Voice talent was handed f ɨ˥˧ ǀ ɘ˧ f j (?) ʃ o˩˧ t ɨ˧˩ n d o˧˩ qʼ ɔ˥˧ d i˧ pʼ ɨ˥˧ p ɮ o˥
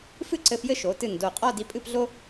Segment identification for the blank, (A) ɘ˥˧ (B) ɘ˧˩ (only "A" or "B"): A